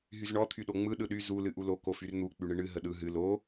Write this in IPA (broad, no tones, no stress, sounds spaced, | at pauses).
ɦ y z ɳ ɔ t̪ʰ y ɗ o ŋ͡m ɯ ɗ ɯ ɗ y z u l ɨ ʔ u l o k o f y r n̪ u k͡p y ɳ ɨ ɳ ɨ ɦ ə ɗ ɯ ɦ ɨ l o